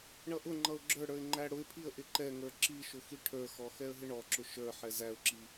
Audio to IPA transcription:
ɳ ʌ ʔ ʊ ŋ͡ǃ ʌ ʊ̯ ɡ͡ǁ ə˞ ɽ ə˞ ɪ̯ ŋ͡ǃ æ ɽ ʊ ɪ̯ pʰ i ə̯ ʔ ɪ ǃ ɛ ŋ ə˞ ǁ i ʃ ʊ x i ʈʰ ə˞ x ɔ x ɛ ə̯ ɦ ɪ ɳ ɔ ǁ ʊ ʃ ə˞ ħ ɛ z æ ʊ̯ ǁ i

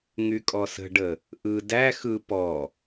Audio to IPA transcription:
ŋ y kʼ ɔ s ə̤ ɖ ə | ʔ ɯ d æ x ɯ p ɔ

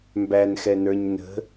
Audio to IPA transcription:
m b æ n x ɛ n ə˞ ɲ n ə̤

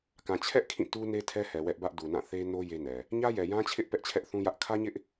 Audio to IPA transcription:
k ã˨ t͡ɕʰ ɛ˦ ʔ kʰ ĩ˦˨ t u˦ n e˦ tʰ ɛ˦ h ɛ˨ w ɛ˦ ʔ b ä˦ ʔ d u˨ n ã˦˨ θ e˦ n o˦ j e˦ n ɛ˨ | ɲ ä˦ j ɛ˨ j ã˦ t͡ɕʰ ɪ˦ ʔ p ɛ˦ ʔ t͡ɕʰ ɛ˦ ʔ θ ũ˦ j ä˦ ʔ kʰ ä˦ ɲ ɪ˦ ʔ

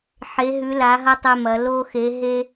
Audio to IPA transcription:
ħ e˩˧ ɦ ʉ˩˧ l a˩˧ ɦ ɐ˧ tˤ ɵ˧ m ɐ˩˧ l o˧ x e˩˧ ɦ e˧

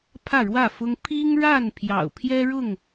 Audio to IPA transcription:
pʰ ä˥˨ ɻ w ä˥˨ f ʊ˦ ŋ pʰ i˦ ŋ ɻ a˥˨ n pʰ j ɑ̰˨˩ ʊ̯ pʰ j ɛ˦ ɻ ʊ˥˨ ŋ

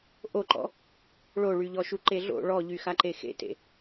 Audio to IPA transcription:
ʔ o ǃ ɔ̰ | ɭ o ɭ y ʎ ɔ ʃ u ǃ e ɮ o̰ ɭ ɔ ʎ y x a ǃ e x ḛ t ḛ

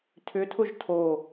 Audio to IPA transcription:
tʰ ʏ tʰ ʊ ʒ tʰ o

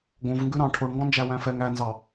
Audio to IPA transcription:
ɡ õ v ŋ ɡ ʉ ɾ ɑ̃ ʈʰ o ɳ ŋ ɡ ɔ̃ n d͡ʒ æ w æ̃ f ɛ ŋ æ n z ɑ

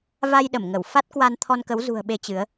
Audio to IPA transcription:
v a˧ j ɗ ə˧˩ m ŋ ə˧˩ w f a˦˥ t̚ k w a˧ n t̪ʰ ɔ˧ n k ə˨˦ w z ṳ˨˩ ə̯ ɓ e˨˦ t͡ɕ ɨ˨˦ ə̯

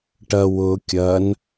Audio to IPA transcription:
ʈ ɐ w ʊ kʲ ɐ n

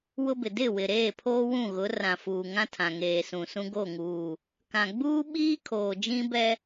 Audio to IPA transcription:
w ʊ˦ b ɪ˨ d ɪ˦˨ w ɪ˨ ɾ eː˦˨ pʰ oː˦ w ũ˦˨ ɣ ʊ˨˦ r ã˨ f uː˨ ŋ ã˦ tʰ ã˨ ŋ eː˨ s ũ˨ s ũ˦ ɡ o˦˨ ŋ uː˨ | k ã˨ ɡ͡b uː˦ ɓ iː˦ kʰ oː˨ d͡ʒ ĩ˦ b ɛ˦

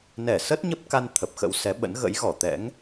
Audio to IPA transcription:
n ɛ˧˩ s ə˦˥ t̚ ɲ ə˦˥ p̚ k a˧ n t̪ʰ ə˨˩ p̚ x ə̰˧˥ w s ɛ˨˦ ɓ ə̰˧˥ n ɣ ə̰˧˥ j ɣ ɔ˧˩ t̪ ɛ̰˧˥ ŋ

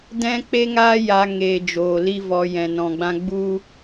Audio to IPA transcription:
d ɛ̃˦ k͡p e˦ ŋ aː˦ j a˧ ŋ eː˨ d͡ʒ oː˨ l i˦ v ɔ˨ j ɛ̃˨ n ɔ̃˨ ɡ͡b ã˦ ɡ͡b u˦

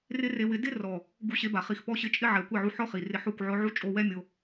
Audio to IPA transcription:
r ɪ˦ r e˧ w ɪ˧ d ɪ˦ r ɔ˨ | ɡ u˧ ɕ e˧ b a˨ χ i˨ x p ɔ˧ ɕ ɪ˧ t͡ʃʼ ɪ˦ ʕ ɛ˨ kʷ e˦˨ ʕ u˧ ħ ɔ˦ χ i˨ r ɪ˧ ħ o˦˨ kʷ ʕ ʊ˧ ʕ u˦ t͡ʃʼ o˧ w ɛ˦ mʲ o˧

